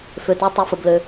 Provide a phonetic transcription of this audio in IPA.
f ø˩ t ø˩˧ tˤ ɘ˩˧ f ə˩ b l ø˩

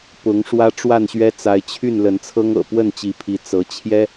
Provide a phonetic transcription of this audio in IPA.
p ʊ˨˦ ŋ ʂ w ä˦ ʈ͡ʂ w a˥˨ n ɕ ɥ ɛ˦ t͡s a˨˦ ɪ̯ t͡ɕʰ y˥˨ n l ə˨˦ n t͡sʰ ɤ˦ ŋ ɤ̰˨˩ p w ə˥˨ n t͡ɕ i˨˦ pʰ i˨˦ t͡s ɤ˨˦ t͡ɕʰ j ɛ˦

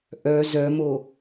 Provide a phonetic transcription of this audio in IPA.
ʔ œ z œ m o

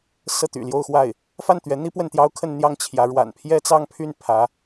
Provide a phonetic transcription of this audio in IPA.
s ɤ˥˩ t̪ y̰˨˩ l j o˥˧ ʊ̯ x w a˥˩ ɪ̯ | f a˥˩ n t̪ ɥ ɛ˧˥ n̪ i˥ p w ə˥˩ n t̪ j ɑ˥ ʊ̯ kʰ ə˥˧ n n̪ j ɑ˥˩ ŋ t͡ɕʰ j ä˧˥ ɻ w a̰˨˩ n pʰ j ɛ˥ t͡s ɑ˥˧ ŋ pʰ y˥˩ n pʰ ä˧˥

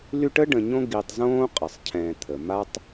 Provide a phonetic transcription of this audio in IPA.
l y˦ ʈ ə˥ ɖ ə̃˨ ɲ õ˦ ɡ i˨ tˤ z õː˥ qʼ ə˩ sˤ cʰ ɛ̃ː˨ t̪ʰ ə˩ m a˥ tˤ

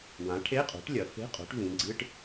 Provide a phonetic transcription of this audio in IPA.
w ã˩˥ ʈʰ e˧˥˧ qʼ o̤˩˥ ʈ lʲ ɐ˩˧ f e̤˧˥˧ qʼ o̤˩˥ ʈ v ĩ˩˧ ɡ͡ǀ ɨ˧˥˧ ʈ

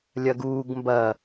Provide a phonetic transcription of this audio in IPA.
lʲ ɐ ɡ uː ɡ m b ɐ

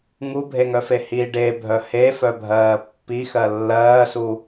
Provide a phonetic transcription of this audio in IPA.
ŋ u bʱ e ŋ œ f e h i ɖ e bʱ œ h e f œ bʱ ɜː pː i x ɜ lː ɜː s u

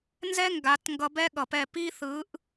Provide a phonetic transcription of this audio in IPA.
n z ɛ˦ ŋ ɡ a˨˦ t ŋ ɡ ʌ˧ b ɛ˦ ɠ ʌ˨ p ɛ˦˨ p i˦ θ ɯ˨˦ ʔ

